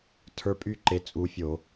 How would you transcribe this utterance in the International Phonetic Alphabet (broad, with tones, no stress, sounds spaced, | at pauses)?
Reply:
tʰ ə˞˦˥ pʼ y˥˧ ǃ e˨˦ t͡sʼ u˨˦ fʲ o˧˩˧